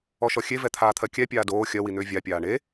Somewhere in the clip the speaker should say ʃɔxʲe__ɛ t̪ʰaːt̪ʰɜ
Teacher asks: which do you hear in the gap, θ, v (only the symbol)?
v